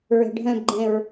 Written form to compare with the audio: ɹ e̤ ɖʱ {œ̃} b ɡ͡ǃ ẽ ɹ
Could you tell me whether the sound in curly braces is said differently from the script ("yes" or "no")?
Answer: no